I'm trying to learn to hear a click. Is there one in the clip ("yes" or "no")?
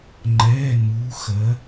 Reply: yes